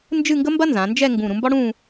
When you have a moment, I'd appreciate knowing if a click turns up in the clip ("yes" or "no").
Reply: no